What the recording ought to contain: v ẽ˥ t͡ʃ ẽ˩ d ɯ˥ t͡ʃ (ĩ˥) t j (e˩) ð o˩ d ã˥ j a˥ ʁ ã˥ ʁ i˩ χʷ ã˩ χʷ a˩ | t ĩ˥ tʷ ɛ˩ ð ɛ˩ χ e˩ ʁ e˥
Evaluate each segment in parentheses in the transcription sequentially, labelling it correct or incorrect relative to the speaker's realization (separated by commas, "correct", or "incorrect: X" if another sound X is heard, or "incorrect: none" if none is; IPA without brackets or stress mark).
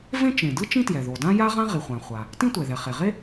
correct, incorrect: ɛ˩